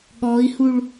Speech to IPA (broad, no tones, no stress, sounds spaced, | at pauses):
ɠ ɔ i̯ h u ɭ